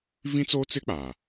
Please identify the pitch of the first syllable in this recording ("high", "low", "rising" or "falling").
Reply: high